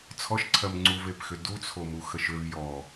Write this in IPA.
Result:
t͡sʰ ɔ ʃ ǀʰ ɜ m ŋ͡ǀ u v e p x ʏ d u t͡sʰ o m u x ə ʃ ʏ v j ɔ

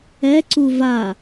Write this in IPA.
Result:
ɛ ǀ u v a

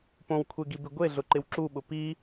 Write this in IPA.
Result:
p õ w kʷʰ e ɡ i b ɪ ɡʷ e ɮ ʊ ǃ ɪ w ǁ u ɓ ʊ p i

